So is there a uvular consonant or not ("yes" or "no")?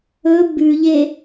no